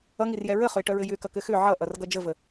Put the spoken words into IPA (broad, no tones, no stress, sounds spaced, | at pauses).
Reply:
ʌ ŋ i r j ɛ ɹ ə χ ʏ e̯ ʈ œ ɹ ɘ j ʏ k ʌ k ɘ x ʏ ʕ ʌ ʔ ʌ r ɡ ʌ d͡ʒ ə v ə